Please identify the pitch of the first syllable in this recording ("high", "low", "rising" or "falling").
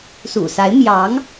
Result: low